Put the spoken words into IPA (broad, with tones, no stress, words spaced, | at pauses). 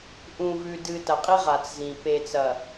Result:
ʔũ˨vʉ˨ dɨ˨ tɐ˨qʼi˦ ʁa˨t͡szĩ˨ pe˨t͡sɐ˨